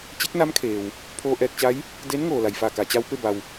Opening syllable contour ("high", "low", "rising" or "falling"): rising